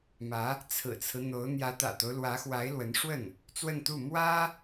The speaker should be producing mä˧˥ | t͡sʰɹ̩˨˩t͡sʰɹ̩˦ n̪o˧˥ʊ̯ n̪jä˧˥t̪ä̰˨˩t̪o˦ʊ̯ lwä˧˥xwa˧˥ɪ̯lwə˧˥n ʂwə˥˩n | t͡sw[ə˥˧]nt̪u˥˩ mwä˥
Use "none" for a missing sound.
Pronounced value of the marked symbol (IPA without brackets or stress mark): ə˥˧